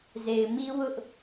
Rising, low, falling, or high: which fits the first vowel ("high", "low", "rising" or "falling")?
low